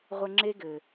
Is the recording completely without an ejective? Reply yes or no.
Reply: yes